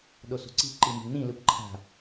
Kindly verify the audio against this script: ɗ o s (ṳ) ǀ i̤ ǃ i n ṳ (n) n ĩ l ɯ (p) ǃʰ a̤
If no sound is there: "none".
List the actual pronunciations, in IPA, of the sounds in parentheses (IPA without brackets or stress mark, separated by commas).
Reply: ṳ, ɳ, p